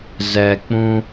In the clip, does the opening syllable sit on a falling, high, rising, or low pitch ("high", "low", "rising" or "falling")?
low